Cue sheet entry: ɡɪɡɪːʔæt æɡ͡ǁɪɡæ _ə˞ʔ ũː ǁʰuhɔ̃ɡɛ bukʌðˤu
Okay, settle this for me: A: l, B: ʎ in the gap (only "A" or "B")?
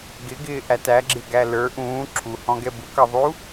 A